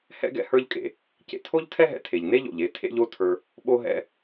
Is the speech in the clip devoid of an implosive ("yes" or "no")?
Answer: no